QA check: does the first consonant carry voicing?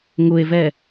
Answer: yes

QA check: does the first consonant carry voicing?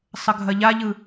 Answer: no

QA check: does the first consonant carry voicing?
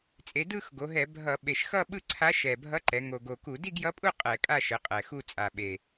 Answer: no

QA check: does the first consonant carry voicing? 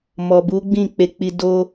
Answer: yes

